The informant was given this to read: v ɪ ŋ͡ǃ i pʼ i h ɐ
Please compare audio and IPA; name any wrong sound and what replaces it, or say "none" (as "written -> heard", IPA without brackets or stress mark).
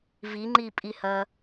ɪ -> i